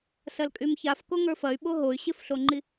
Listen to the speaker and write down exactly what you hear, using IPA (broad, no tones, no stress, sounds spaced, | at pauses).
s ɐ l kʼ y m ç a f k o ŋ ə˞ f ɐ y̯ ɓ o ɦ o y̯ ɕ ɪ f ɬ o ŋ͡ǃ i